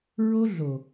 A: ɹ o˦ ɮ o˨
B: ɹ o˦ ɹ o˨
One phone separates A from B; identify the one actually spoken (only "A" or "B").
A